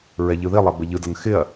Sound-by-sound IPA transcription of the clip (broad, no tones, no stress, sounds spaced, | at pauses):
ɹ ɛ ʎ ɯ ð i lˠ a b ə ʎ ɯ d ʌ n x ɪ ɐ̯